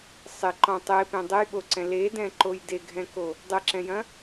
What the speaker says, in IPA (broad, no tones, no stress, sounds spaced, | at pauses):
sˤ ɪ ǃ ɔ̃ tˤ e p ẽ dˤ ɘ j ɓ o ǀ ɛ̃ l e d ɛ̃ ǃ o j d e ɡʱ ɛ̃ k o | dˤ ɘ ǁ ɛ̃ j ɐ̃